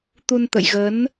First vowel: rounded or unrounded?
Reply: rounded